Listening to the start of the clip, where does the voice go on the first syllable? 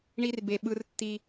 high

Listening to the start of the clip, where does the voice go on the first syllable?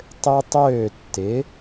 high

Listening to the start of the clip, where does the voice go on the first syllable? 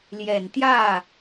low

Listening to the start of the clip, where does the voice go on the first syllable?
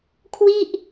falling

